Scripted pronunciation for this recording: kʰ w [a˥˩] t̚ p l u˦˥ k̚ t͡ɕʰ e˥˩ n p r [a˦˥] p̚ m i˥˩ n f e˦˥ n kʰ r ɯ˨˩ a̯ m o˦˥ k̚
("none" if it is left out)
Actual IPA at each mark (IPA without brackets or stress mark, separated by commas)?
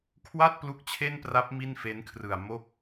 a˥˩, a˦˥